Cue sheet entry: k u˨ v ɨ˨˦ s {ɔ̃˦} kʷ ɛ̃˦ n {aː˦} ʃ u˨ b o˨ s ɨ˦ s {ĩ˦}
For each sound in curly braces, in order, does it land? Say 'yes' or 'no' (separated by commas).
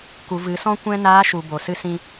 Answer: yes, no, yes